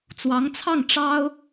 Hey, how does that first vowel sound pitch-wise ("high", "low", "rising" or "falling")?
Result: rising